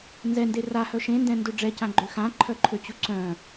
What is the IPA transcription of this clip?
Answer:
nzɛnde rahœ ʃẽndɛ̃ndø ɖ͡ʐɛcãɡ͡ǃø xãǃʰœǃʰøt͡ɕu ǀœ̃

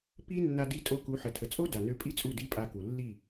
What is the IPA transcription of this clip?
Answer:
pi˦ nːa˧di˧tʼo˧ku˨˦ ħə˨tʰə˨t͡sʼo˦ da˨nø˧pʼi˦t͡sʼu˦˨ di˦pʼa˧ku˨ lːi˦˨

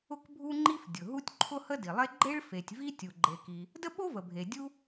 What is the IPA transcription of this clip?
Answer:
ʊ˥kbʱu˥ŋ͡ǃi˥f dʲʊ˩ ɦu˥tʲǃʰʊ˥hə˥ di˩lˠe˥ ɡ͡ǃe˥ɭfe˩tʲvi˥tʲu˩ ɡ͡ǃe˩ki˩ | də˥ɓo˥ və˩bʱe˩ dʲu˥

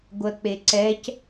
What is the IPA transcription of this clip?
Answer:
ɡʷɜk͡peǀɛc

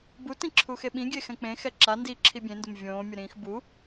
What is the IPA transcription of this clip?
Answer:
but ĩǁʰuxeɓĩ ɡʲexɛ̃k͡pẽ xɛǁa ndi ǁʰibʲẽndʊm vʲõː mʲʊɾĩːxbu

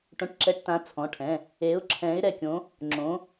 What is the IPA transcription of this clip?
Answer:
ʈõ˧ʈǁɛ˧ʈtã˨˥ t͡sʰɔ̃˩˧˩ʈʰɛ̃˩˧˩ | e˨˥ʊ̯ ǁʰɛ̃˨˥ɪ̯ɾɛ˧kʲõ˨˥ | ŋ͡ǁõ˨˥

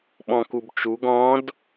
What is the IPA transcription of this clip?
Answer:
ɓɔ̃kubt͡ʃuɡ ɔ̃d

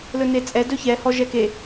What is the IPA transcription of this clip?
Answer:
lɵnet͡sʼɛ dɵçɛ hɔʒɛke

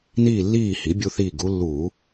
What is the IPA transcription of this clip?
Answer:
niː˦˨lːiː˦˨ hi˩˥bʲu˦θiː˦˨ɡ u˦lːuː˧˩˧

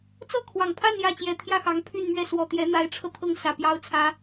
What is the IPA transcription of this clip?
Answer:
t͡sɤ˥˩ kʰwɑ˨˩ŋ pʰa˥˧n jä˥˩ t͡ɕjɛ˨˩t̪ʰjä˥˩xɑ˧˥ŋ pʰy˥˧nmɥɛ˥˩ swɔ˨˩t̪jɛ˧˥n̪a˧˥ɪ̯ʈ͡ʂʰɤ˧ t̪ʰɤ˥˩ŋsä˨˩pjɑ˥ʊ̯t͡sʰä˥

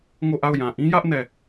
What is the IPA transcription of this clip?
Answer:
ŋo˦˨ʔa˦˨ʊ̯jã˨ ʔĩ˦jä˦ʔ nɛ˦˨

